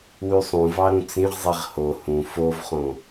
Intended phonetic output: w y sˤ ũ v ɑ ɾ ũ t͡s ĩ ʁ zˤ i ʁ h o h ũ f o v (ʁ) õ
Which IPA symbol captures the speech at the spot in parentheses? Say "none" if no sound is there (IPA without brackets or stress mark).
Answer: χ